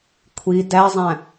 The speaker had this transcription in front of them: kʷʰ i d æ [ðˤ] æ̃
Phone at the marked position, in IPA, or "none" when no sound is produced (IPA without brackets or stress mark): zˤ